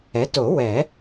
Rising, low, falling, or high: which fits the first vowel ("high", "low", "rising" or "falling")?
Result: rising